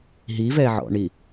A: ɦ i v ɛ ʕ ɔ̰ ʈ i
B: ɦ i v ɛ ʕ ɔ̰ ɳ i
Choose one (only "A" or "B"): B